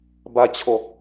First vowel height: low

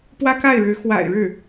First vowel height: low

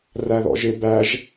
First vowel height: low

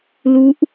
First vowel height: high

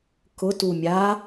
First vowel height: high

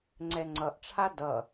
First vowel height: mid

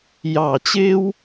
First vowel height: low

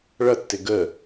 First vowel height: mid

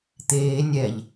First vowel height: mid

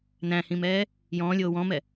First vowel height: low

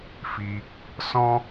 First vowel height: high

